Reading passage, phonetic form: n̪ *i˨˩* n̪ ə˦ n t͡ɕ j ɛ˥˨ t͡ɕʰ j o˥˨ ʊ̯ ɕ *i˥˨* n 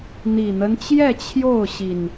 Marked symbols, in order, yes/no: yes, no

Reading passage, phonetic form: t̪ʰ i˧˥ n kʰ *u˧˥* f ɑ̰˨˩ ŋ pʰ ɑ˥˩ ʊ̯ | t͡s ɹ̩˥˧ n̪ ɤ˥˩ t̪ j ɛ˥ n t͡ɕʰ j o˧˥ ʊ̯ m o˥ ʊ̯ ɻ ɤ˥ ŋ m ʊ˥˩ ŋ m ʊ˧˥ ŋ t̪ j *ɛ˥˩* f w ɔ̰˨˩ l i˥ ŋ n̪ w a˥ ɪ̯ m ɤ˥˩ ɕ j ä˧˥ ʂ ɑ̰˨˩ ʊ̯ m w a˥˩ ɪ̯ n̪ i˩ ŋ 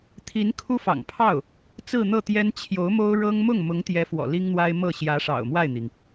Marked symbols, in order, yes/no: no, no

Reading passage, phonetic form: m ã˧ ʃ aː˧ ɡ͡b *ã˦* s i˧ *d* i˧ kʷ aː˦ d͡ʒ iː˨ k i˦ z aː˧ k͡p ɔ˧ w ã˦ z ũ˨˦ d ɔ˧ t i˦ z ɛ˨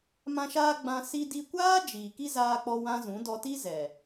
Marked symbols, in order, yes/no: no, yes

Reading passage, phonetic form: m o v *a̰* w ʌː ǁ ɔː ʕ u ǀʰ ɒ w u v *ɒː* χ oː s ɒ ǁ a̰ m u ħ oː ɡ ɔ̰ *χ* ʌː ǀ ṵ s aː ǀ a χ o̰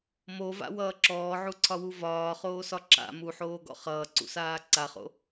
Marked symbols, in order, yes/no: yes, yes, yes

